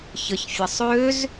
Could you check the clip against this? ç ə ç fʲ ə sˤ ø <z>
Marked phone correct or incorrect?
correct